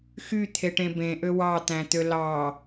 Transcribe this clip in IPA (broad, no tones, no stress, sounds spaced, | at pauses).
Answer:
x y t̪ʰ e ʈ ẽ b ẽ ʔ ø w ɑ t̪ æ̃ t̪ ø l ɑ